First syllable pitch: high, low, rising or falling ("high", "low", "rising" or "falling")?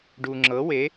low